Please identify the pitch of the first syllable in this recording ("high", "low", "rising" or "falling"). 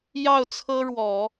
falling